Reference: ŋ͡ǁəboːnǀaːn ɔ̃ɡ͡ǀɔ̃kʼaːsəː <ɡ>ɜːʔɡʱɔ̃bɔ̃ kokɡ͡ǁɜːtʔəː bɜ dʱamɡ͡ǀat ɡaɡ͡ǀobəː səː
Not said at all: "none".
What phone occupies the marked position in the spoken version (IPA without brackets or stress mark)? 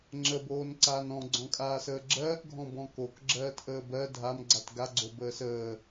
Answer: ɡ͡ǁ